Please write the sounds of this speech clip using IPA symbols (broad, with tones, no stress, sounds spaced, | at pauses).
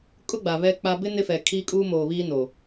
kʼ ʊ˦ ɡ͡b a˨ β ɛ˦ k͡p a˦ b ɪ˦ n ɪ˦ f ɛ˨ kʰ iː˦ kʼ uː˦ m oː˨ β iː˦ n o˨